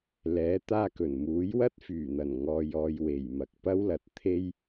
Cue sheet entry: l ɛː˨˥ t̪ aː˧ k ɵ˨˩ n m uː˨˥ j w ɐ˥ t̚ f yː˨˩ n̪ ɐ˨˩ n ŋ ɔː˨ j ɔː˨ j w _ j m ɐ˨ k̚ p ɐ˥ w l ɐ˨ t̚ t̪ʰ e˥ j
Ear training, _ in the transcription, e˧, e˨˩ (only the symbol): e˨˩